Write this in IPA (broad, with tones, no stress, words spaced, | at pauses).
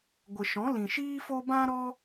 ɡʷə˨ʃɔ̃˨˦ lĩ˨ʃiː˦fo˦ bã˦ ɾɔ˦